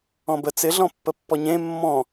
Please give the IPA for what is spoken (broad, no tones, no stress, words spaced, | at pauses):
ɔ̃bə t͡sɪ ɮɔ̃pːəpːɔɲẽ mːɔ̃